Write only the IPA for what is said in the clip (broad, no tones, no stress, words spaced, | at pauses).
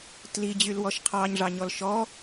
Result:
tlid͡ʑylwɔʃ qʰɑɲʐɑɲɔl ʃɔ